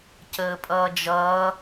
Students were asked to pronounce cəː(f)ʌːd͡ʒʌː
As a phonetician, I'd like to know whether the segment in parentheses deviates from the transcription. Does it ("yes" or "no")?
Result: yes